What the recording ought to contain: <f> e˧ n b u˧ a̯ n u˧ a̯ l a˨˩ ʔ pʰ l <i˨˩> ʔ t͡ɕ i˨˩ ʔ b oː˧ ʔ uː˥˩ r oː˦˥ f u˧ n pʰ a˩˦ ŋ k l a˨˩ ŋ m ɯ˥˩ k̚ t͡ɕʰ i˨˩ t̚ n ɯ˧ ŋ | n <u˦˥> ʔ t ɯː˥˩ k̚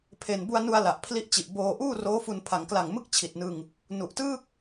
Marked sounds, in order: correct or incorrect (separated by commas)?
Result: incorrect, incorrect, incorrect